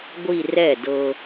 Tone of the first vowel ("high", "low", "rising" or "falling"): falling